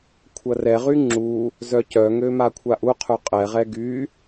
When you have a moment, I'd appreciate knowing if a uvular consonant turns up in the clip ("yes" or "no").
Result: yes